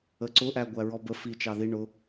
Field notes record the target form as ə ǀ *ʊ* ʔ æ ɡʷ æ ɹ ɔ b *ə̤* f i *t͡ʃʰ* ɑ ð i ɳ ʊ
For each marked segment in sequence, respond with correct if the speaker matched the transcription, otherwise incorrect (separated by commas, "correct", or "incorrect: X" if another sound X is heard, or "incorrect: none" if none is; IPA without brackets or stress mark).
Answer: correct, incorrect: ə, incorrect: t͡ʃ